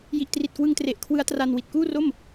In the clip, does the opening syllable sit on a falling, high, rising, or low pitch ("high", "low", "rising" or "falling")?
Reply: low